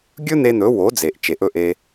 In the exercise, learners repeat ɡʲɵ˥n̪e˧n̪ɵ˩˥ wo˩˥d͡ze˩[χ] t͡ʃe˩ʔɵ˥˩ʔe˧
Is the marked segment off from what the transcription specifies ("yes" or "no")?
yes